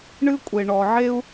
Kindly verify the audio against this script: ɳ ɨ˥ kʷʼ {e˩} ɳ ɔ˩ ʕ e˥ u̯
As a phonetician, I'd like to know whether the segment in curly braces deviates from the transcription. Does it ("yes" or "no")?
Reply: no